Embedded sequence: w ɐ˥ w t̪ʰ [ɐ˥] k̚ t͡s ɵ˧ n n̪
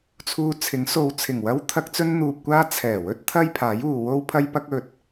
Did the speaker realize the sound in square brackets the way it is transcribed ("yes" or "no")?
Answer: yes